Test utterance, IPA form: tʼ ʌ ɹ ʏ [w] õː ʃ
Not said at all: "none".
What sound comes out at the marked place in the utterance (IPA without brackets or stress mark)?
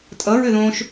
ð